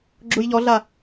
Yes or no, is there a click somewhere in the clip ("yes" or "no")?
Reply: yes